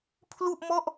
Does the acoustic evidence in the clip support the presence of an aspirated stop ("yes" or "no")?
yes